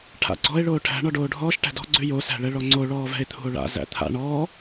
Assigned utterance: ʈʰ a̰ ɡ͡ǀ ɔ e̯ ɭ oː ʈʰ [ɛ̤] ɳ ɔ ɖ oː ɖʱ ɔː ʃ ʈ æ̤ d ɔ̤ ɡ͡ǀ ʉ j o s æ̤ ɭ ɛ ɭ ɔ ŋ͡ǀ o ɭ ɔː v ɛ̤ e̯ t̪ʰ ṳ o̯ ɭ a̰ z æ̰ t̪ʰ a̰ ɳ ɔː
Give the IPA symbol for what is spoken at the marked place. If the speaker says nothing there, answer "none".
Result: æ̤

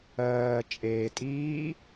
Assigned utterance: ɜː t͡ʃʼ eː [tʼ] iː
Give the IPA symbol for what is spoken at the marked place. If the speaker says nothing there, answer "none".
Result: tʼ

